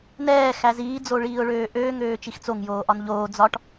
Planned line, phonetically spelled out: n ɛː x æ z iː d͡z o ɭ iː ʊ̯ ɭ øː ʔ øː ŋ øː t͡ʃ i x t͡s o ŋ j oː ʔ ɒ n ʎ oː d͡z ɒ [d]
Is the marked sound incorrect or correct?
incorrect